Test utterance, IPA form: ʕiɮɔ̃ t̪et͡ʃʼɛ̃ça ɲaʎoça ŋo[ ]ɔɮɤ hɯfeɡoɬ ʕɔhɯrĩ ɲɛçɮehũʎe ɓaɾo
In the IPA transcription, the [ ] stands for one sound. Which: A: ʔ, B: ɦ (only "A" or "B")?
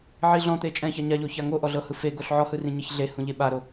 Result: A